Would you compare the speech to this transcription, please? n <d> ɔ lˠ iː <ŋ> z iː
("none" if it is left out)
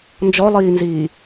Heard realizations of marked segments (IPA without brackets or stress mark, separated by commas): d͡ʒ, n